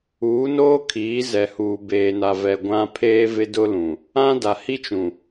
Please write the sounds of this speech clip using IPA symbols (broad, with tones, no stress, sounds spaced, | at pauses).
uː˨˦ n oː˦ kʰ iː˨˦ z ɛ˨ h uː˨ b eː˨ n a˨ v ɛ˨ ɡʷ ã˦ pʰ eː˦ v ɪ˦ d ʊ˦ l ũ˨ | ã˦ d a˨ h i˦ t͡ʃ ũ˨